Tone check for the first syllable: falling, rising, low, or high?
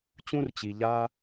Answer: high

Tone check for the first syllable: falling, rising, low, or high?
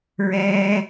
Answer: high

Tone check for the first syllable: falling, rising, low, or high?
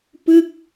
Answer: falling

